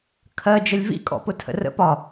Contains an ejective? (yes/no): yes